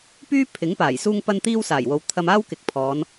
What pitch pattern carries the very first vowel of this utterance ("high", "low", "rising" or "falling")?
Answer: high